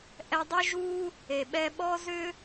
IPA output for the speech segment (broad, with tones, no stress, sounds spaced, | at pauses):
ʔ ɛ˧ dˤ ʏ˥ ʒ u˥ | e˩ ɓ ɛ˧ ɓ ɔ˥ z ʏ˥